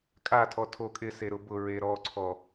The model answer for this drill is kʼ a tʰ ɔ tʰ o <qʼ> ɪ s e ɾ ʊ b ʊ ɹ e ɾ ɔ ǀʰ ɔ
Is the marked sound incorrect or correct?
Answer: incorrect